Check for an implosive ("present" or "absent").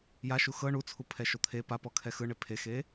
absent